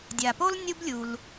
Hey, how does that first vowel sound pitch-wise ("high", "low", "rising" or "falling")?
low